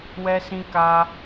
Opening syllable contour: high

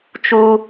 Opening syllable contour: high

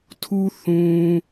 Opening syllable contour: low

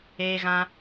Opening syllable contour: high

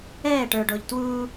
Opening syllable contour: falling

